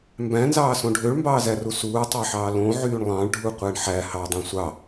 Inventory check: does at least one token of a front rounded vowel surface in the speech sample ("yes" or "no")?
yes